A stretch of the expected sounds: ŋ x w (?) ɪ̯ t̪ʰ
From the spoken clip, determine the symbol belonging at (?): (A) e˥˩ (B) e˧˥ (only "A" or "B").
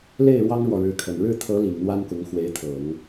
B